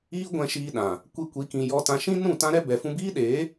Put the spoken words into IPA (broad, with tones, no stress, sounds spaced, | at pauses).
iː˦ ɡʷ ɛ̃˧ ʃ iː˧ ɗ ã˨ | kʷ i˧ kʷ i˨˦ k ĩ˨ j ɔ˧ t ã˧ ʃ ĩ˦ n ũ˦˨ t ã˦ ɾ ɛ˦ b ɛ˨ f ũ˧ b iː˦ ɗ eː˨˦